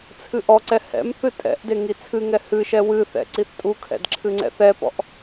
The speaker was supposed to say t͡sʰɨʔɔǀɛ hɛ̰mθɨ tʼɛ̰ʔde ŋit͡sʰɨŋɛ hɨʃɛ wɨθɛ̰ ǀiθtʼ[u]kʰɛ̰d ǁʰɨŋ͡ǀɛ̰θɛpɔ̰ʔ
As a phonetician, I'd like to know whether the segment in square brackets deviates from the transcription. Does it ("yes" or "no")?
no